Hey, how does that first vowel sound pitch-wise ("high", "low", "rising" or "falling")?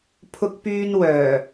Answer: high